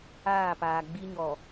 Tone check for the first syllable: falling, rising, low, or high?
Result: falling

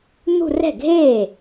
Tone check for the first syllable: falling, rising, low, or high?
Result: falling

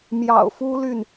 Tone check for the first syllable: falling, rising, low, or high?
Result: low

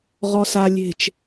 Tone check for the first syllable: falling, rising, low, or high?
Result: low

